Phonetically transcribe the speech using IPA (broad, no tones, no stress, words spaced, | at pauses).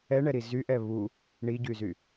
ɛɳɛɾi zyʔɛ βu | ɳiɟyzy